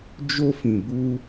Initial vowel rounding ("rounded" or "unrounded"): rounded